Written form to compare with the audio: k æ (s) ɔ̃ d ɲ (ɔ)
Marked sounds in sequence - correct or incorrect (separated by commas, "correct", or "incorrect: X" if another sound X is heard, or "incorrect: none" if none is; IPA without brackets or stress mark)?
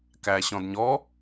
incorrect: ɕ, correct